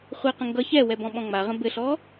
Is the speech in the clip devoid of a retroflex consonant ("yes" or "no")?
yes